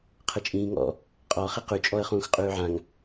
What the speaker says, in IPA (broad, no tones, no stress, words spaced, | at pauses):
qʰət͡ʃʼĩːŋɔ̰ | qʼɔ χeqʉ t͡ʃʼɔə̯χũːxqʼʉːʕãŋ